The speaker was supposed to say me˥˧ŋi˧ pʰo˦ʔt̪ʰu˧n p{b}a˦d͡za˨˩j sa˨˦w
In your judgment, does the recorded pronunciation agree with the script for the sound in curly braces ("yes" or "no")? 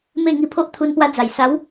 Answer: no